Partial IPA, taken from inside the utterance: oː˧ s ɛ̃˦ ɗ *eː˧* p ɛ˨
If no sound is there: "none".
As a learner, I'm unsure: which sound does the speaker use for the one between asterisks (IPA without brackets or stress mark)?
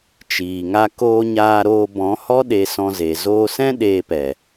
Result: eː˧